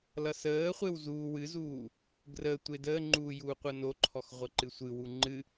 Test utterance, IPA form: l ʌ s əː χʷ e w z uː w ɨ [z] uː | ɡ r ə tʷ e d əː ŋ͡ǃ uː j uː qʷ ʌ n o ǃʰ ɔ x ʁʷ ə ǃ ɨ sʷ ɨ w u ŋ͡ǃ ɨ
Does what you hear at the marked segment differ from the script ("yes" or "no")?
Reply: no